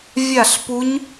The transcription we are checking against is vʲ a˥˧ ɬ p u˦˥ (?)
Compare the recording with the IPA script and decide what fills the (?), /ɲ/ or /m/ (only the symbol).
ɲ